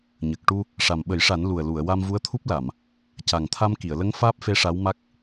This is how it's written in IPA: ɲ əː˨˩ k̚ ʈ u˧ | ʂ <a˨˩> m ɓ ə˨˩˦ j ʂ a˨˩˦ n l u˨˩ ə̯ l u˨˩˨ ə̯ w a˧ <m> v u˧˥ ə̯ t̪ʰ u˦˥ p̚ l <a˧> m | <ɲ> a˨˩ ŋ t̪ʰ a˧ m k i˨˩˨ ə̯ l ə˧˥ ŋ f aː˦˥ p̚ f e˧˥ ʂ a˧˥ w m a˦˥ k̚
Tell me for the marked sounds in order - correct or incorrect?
correct, correct, incorrect, incorrect

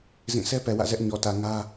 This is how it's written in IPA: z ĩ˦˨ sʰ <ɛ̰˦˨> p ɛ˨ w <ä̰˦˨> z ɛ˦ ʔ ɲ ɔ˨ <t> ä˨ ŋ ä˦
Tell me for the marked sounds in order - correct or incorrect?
incorrect, correct, correct

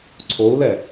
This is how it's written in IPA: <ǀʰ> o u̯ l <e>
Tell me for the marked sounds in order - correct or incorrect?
correct, incorrect

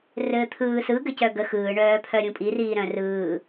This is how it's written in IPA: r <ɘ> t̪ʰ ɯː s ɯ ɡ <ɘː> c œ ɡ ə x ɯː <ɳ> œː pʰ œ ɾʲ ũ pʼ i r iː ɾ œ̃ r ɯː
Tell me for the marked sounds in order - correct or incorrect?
incorrect, incorrect, correct

